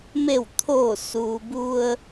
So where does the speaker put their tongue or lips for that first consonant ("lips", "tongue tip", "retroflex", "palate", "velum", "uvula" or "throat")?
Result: lips